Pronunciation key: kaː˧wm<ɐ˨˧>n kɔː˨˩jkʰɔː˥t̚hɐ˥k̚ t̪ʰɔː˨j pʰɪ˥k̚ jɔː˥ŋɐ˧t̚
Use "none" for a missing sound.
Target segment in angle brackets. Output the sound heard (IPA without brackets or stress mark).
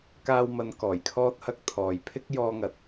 ɐ˨˧